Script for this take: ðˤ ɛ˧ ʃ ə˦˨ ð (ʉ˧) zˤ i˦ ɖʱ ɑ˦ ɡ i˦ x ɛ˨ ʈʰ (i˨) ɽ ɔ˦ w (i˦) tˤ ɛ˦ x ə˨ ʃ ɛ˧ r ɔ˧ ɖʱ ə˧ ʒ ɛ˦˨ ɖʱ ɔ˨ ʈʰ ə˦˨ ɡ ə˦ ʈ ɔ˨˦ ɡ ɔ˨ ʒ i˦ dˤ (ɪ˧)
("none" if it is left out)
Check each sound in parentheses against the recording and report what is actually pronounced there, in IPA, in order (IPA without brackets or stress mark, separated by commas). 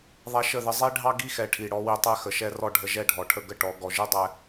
ə˧, i˨, i˧, ɛ˧